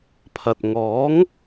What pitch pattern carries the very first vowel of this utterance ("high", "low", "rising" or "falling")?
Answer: low